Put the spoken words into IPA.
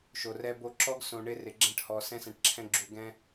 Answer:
ʃ o˨ r ɛ˦ b o˦ ǁ ɔ˦ ɡ s õ˨ ɳ ɪ˦ r ɪ˨ ɡ͡ǁ ɛ̃˦ ʈ h ɔ˨ s ɛ̃˦ s ɛ̃˨ ʈ ǁʰ ɛ̃˦ ɡ͡ǁ u˨ ɡ ɛ̃˦

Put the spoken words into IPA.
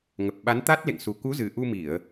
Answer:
ŋ ə˨˩ p̚ ɓ a˨˦ n t̪ a˦˥ t̚ l ḛ˧˨ ŋ s u˨˩ k u˨˦ z ɨ˨˩ ʔ u˧ m i˧˩˨ ə̯

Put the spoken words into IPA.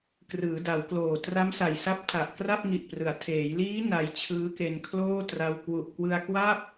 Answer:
k r ɯː˩˦ d a˩˦ w k l oː˨˩ t r a˦˥ m s a˨˩ j s a˦˥ p̚ tʰ a˨˩ ʔ k r a˥˩ p̚ ŋ i˨˩ ʔ p r ɯ˩˦ a̯ tʰ eː˩˦ j l iː˦˥ n a˧ j t͡ɕʰ ɯː˦˥ k e˧ n kʰ l oː˥˩ t r a˧ w k w u˨˩ ʔ k w ɯ˧ a̯ k w a˥˩ p̚

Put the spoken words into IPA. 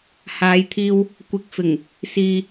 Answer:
h aː˨˧ j t̪ʰ iː˧ w | kʷ ɪ˨ k̚ f ɪ˨˩ ŋ | s iː˧

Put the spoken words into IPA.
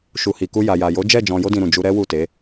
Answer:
ʃ u˨ h i˨ k u˧ j a˨ j a˨ j o˨˦ d͡ʒ ɛ˦˨ d͡ʒ ɔ̃˧ j o˦ d ĩ˧ ɾ ũ˨ d͡ʒ u˧ ɾ ɛ˦ w u˦˨ t e˨˦

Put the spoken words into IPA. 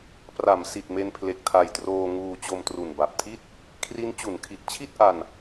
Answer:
p r a˩˦ m s i˨˩ t̚ m e˧ n pʰ l e˨˩ k̚ tʰ a˨˩ j t r oː˧ ŋ uː˧ t͡ɕ o˧ m t r u˨˩ n b a˨˩ p̚ tʰ i˥˩ t̚ | kʰ r i˦˥ n t͡ɕ u˩˦ n kʰ i˨˩ t̚ t͡ɕʰ i˥˩ t̚ ʔ a˧ n

